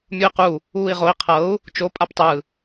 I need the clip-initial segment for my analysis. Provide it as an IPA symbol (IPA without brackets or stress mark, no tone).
mʲ